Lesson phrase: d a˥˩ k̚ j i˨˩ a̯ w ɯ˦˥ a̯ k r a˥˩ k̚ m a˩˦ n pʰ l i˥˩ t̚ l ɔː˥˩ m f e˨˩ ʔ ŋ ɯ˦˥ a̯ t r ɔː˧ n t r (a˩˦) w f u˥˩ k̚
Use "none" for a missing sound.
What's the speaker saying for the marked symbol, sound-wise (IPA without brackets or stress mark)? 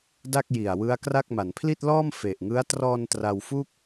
a˧